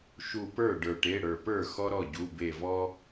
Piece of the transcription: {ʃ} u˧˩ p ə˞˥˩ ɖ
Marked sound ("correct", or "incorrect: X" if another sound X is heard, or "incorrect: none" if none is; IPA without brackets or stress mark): correct